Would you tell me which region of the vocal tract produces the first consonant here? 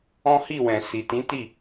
throat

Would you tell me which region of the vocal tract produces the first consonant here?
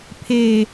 lips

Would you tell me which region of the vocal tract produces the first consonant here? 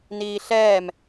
tongue tip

